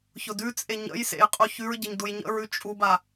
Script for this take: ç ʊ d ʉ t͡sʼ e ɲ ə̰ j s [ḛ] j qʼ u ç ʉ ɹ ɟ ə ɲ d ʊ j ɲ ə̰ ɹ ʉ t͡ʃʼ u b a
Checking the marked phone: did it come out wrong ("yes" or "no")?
no